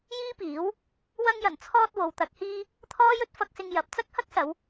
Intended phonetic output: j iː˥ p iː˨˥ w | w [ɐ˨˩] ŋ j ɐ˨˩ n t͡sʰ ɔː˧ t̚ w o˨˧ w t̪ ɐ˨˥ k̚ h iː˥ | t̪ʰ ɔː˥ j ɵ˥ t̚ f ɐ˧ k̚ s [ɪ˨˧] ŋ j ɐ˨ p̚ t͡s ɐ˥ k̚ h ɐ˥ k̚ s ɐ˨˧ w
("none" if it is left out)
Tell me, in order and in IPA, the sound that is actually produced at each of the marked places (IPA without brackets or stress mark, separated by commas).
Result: ɐ˧, ɪ˧